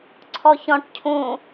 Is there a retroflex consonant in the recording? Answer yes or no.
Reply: yes